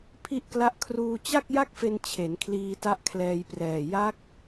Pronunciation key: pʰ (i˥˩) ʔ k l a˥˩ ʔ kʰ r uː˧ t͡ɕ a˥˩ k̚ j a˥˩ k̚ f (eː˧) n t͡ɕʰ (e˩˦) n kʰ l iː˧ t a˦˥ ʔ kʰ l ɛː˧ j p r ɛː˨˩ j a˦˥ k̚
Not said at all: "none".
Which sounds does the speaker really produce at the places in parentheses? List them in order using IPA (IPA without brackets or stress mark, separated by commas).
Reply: i˥˩, e˧, e˩˦